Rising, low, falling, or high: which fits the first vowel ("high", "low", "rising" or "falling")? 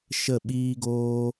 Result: falling